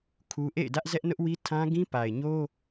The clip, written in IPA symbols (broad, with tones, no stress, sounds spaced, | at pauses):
kʰ u˦ ʔ ḛ˦˨ ɪ̯ d ä˦ ʔ z ɛ˦ ʔ n ʊ˦ ʔ w i˦ tʰ ã˦ ɡ ĩ˦ p a˨ ɪ̯ ɲ o˦